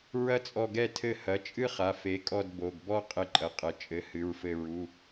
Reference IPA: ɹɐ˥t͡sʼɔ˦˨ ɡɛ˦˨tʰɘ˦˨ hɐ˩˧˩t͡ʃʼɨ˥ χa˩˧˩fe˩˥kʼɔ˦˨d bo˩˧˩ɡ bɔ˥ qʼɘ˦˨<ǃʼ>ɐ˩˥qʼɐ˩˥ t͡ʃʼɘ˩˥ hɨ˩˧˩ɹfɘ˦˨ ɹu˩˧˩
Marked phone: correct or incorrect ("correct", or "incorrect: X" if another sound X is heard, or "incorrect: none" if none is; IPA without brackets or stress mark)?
correct